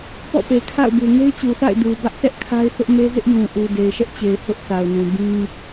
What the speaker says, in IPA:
p ɔ̰˦˨ p e˨ kʰ a̰˦˨ ʊ̯ b u˨ ŋ e˦ ɪ̯ t͡ɕ u˨ sʰ a̰˦˨ ɪ̯ d u˨ b ä˦ ʔ sʰ ɛ˦ ʔ kʰ a˦ ɪ̯ s ʊ˦ ʔ m e˦ z ɪ˦ ʔ j ũ˨ ʔ u˨ d e˨ ɪ̯ ʃ ɛ˦ ʔ t͡ɕ e˨ ɪ̯ h ʊ˦ ʔ sʰ a˨ ʊ̯ n ũ˨ b ĩ˦

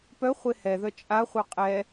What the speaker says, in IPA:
p œ χʷ e h ɛ ð œ t͡ʃʼ a χʷ œ qʼ ɛ

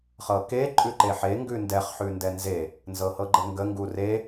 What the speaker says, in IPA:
χ ɤ k e ǃʼ ʉ ǃ e ħ e ŋ ɡ ʉ n d ɛ χ ħ ʉ n d ɛ n z e | n z ɤ h ɤ ɡ͡ǃ ə ŋ ɡ ə ŋ ɡ u r e

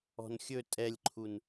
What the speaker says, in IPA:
ɔ̤ n xʲ ɵ tʼ ɛ lʲ ǃʰ u n

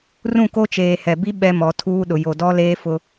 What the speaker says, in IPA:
r ũ˦˨ k o˦ t͡ʃ eː˨ h ɛ˨ b i˦ ɓ ɛ˦ m ɔ˨˦ tʰ uː˦ ɗ ʊ˨ j o˨ d ɔ˦ l eː˦ f ʊ˦

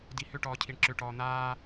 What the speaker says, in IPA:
d i h ʏ ʈ ɔː cʰ i ɳ ǁ ʏ ʈ ɔː n̪ aː

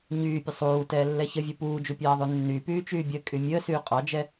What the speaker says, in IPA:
ɲ yː pʲ ə sˤ uː t ɛː lː ɛ ç ə vʲ u p uː d͡ʒ u pʲ ɑː ðˤ y nː y p yː t͡ʃ yː bʲ ə kʼ y mʲ əː s yː qʼ ɑ d͡ʒ ɛ

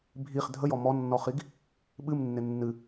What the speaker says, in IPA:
bʱ i χ dʱ ə j ɔ m ɔ nː ɔ χ i ɡ | ɓ ɨ m nː ɪ nː ɨ

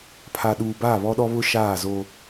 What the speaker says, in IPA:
pʰ a˨ ɗ uː˨ b aː˦˨ β ɔ˦ ɗ ɔ˦ β ʊ˦ ʃ aː˦˨ z o˦

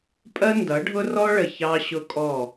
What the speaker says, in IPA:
pʼ ɜ˦ n d ʌ˨˦ ɖʱ ʊ˦ r ɔ˦ ɭ ə˨ ç ɑ˦ ɕ ʊ˦ kʼ ɔ˦˨

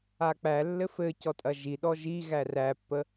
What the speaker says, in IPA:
a k͡p æ lː ɘ f ɘ c ɔ tʼ ɐ ʒ i ɗ ɔ ʒ i ɣ æ r æ pː ə

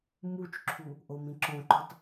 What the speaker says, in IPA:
m u t͡ʃ ǁʰ u | ʔ o m ĩ ǁ õ ǃ u tˤ

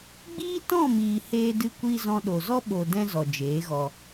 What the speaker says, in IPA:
ɡ͡b iː˦ t ɔ̃˦˨ m iː˨ h eː˧ d ɨ˧ kʷ iː˧ z ɔ̃˧ ɗ o˨ z ɔ˦ ɓ o˨ d ɛ̃˦ z ɔ˨ d͡ʒ eː˨˦ ɣ ɔ˧

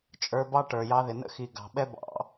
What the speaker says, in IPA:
t͡ʃʼ ə˞˧ b ɑ˦ ʈ ə˞˨ j ɑ˧ ð ɪ˨ n ə̰˦ x i˨ ɡ ɑ̤˨ ɓ ɛ˦ b ɑ̰˧

